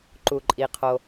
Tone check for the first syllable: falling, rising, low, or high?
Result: low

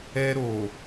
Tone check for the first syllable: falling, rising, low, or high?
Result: high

